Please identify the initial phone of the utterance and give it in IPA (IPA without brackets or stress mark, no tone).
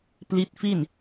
p